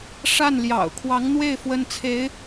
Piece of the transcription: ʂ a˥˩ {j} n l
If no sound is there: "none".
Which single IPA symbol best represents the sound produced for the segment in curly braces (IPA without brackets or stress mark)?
none